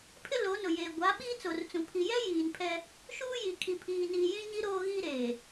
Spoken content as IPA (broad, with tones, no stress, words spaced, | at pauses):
pʰɪ˦ lo˨˦nʊ˨jeː˨ ɡʷa˨˦ ɓiː˦ t͡so˨rt͡sũ˨ pʰi˨jɛ˦ jiː˨npʰɛ˦ | ʃuː˦ji˨ kʰi˨pʰiː˨niː˨jĩ˦ ɲi˦ɾoː˦ɣiː˦ɾeː˨